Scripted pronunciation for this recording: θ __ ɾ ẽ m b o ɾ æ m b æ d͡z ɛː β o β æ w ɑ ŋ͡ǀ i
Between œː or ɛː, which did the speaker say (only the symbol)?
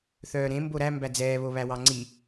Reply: œː